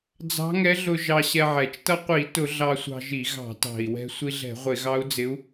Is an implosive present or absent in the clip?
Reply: absent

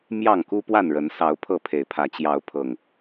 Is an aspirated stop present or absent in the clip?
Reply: present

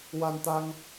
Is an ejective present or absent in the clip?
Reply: absent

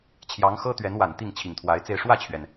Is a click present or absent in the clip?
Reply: absent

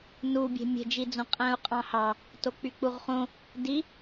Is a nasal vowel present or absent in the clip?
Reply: present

